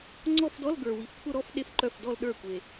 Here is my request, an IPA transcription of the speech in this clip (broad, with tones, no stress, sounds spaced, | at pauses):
ŋ͡ǀ ɔ˥˧ f d ɔ˧˥˧ l ɡ ə˞˨ w i˨ f kʷʰ ə˥˧ ɾ ɔ˥˧ f ɗ e˥˩ f ǃ œ˥˩ f d ɔ˥˧ l ɗ ə˞˥˩ kʷ e˨